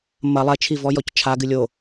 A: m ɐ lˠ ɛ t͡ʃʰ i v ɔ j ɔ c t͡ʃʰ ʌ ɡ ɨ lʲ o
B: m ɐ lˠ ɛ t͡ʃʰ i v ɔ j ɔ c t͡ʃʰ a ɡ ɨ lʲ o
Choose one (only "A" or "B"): B